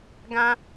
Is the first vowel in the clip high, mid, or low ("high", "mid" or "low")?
low